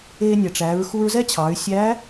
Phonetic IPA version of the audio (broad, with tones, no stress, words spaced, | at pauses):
eː˧nʲɛ˩ʈ͡ʂæː˩˧ɹ xu˧ɹzɛ˥t͡ɕʰɑ˩˧y̯ sʲæ˧˥